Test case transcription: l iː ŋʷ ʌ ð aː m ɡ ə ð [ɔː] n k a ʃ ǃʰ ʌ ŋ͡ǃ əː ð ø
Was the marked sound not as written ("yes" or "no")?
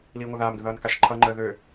yes